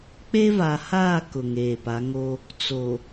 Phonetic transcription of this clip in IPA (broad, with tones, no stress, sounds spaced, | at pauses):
k͡p e˦ v a˨ h aː˦˨ k ʊ˨ ŋ eː˨ p a˨˦ ŋ o˦ | t͡s o˨